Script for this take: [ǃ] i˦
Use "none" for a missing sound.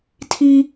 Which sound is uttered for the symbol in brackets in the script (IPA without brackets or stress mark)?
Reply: tʰ